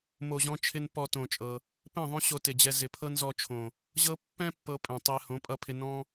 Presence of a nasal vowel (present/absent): present